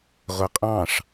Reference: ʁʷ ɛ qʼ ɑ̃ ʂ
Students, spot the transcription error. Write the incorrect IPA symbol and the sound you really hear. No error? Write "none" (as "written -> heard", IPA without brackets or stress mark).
none